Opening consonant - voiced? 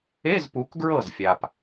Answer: yes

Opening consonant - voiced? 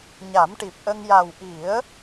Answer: yes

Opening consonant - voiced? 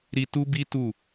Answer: yes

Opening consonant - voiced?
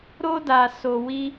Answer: yes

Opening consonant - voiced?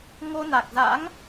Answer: yes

